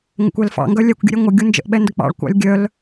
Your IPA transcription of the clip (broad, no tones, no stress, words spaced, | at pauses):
ŋə̰kʷɛlfɑ̰ ŋɡœlʲɛkʷ ɡʲə̰ɾʲɛŋʷə ɡʲund͡ʒə̰ʔ ɓɛndək͡pɑ̰ɭ kʷɑ̰lʲɡʲœl